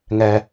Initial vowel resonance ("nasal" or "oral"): oral